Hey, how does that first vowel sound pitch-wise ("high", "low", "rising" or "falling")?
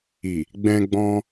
low